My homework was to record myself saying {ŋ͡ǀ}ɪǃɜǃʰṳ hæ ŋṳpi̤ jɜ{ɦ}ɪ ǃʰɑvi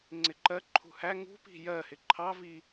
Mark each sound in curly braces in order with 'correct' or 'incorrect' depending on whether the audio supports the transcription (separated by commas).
correct, incorrect